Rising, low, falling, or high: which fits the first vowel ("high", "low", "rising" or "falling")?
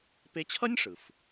high